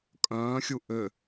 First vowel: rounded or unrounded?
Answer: rounded